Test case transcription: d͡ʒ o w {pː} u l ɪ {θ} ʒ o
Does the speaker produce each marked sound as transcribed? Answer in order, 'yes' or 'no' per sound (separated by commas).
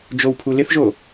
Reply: no, yes